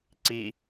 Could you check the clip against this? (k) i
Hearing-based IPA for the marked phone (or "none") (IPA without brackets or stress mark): ǀ